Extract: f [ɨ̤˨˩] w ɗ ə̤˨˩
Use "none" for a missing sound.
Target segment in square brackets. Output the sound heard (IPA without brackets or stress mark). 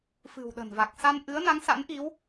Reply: ɨ̤˨˩